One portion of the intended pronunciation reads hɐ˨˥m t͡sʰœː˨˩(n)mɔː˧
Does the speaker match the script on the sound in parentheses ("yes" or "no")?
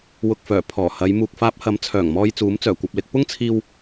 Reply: no